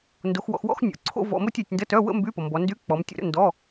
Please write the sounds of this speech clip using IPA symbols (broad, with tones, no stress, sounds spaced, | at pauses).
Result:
n d o˨˦ x w ɔ̰˨˦ x w ɔ̰˥˧ x nʲ o̰˨˦ ǀʰ o̰˥˧ v ɔ̰˧˥˧ m o˥˧ tʲ œ˨˦ tʲ n d ə˧˥˧ t œ˧˥˧ w ə̰˥˧ m b y˧˥˧ p ʌ˨ m b ɔ˨˦ n d y˧˥˧ k͡p ɔ˨˦ m tʲ o̰˥˧ ɾ ə̰˧˥˧ n d ɔ˧˥˧